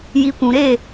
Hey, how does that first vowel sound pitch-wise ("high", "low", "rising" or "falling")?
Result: low